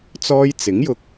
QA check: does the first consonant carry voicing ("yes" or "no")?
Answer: no